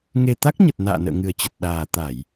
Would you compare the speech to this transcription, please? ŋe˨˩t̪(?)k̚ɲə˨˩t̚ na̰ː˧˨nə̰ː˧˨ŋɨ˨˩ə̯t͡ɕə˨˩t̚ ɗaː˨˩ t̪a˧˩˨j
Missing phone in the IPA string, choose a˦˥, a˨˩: a˦˥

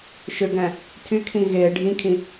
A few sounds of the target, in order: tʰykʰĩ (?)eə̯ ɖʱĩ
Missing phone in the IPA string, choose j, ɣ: ɣ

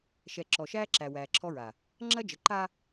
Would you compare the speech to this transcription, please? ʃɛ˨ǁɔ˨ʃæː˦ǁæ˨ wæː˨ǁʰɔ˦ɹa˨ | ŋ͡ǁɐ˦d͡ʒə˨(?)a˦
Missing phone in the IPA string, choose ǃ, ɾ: ǃ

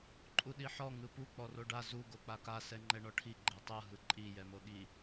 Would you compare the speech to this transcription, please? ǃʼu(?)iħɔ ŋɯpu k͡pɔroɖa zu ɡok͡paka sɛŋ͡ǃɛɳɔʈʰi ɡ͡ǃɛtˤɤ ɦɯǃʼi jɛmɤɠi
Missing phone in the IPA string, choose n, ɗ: ɗ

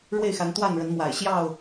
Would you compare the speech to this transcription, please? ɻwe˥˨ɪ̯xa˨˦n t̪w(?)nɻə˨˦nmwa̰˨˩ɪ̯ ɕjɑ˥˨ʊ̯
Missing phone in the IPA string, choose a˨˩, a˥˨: a˥˨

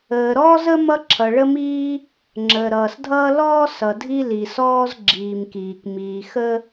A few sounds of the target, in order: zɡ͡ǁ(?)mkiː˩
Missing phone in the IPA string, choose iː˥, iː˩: iː˩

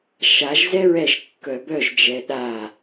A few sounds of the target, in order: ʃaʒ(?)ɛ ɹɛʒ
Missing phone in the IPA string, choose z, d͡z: z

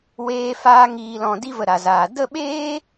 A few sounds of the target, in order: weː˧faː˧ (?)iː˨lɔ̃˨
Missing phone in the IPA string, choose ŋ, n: ŋ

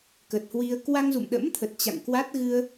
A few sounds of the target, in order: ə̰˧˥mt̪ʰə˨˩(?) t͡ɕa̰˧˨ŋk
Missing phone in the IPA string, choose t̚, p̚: t̚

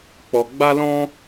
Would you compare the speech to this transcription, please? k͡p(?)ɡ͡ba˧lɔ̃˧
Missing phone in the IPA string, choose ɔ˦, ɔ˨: ɔ˨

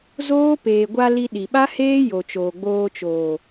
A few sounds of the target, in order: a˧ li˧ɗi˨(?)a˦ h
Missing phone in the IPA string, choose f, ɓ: ɓ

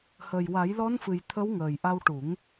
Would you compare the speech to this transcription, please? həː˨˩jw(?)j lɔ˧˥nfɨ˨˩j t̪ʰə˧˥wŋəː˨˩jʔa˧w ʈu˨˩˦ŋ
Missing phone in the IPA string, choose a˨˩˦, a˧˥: a˨˩˦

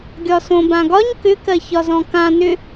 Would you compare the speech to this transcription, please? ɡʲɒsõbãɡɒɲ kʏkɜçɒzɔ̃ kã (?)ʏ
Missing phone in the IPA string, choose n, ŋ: n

